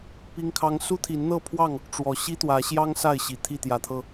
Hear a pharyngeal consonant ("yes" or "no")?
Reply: no